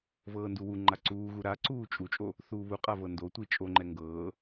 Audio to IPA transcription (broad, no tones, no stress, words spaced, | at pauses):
vɤːnduwuŋ͡ǃa ǀuːɣu ɾaǀuː t͡ʃʼut͡ʃʼo | θuːβuqʼa vɤndotʷi t͡ʃʼoŋ͡ǃɛ ŋɡɤː